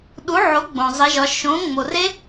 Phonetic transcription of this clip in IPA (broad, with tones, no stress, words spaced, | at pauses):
ɗu˩˥ʕo˩˥ ɡ͡bõ˩ zˤe˩˧ʒɒ˩˧ ʃõ˩˥ ŋ͡mo˩re˦˥